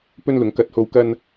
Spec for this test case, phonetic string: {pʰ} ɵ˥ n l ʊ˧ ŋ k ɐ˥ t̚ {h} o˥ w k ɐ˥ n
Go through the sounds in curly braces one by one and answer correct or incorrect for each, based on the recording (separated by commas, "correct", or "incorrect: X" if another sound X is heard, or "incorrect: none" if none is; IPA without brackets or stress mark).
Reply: incorrect: p, correct